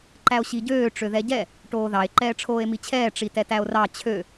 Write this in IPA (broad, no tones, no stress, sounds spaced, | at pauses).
ǃ æ o̯ ɕ i ɟ øː ʈ͡ʂ ø ð ɛ ɟ ɛ | ʈ oː ð ɑ e̯ ǃ ɛː ʈ͡ʂʰ oː e̯ m i t͡ɕʰ ɛː ʈ͡ʂ i t ɛ t æ o̯ r ɑ t͡ɕʰ ø